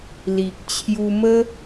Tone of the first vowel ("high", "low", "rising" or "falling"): low